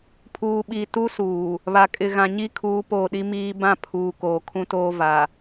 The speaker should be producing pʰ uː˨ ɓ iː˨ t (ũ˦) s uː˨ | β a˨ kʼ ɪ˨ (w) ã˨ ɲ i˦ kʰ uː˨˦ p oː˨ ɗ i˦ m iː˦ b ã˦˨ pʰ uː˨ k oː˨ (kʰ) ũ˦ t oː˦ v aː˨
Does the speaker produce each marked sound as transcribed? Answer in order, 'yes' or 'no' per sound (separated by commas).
no, no, yes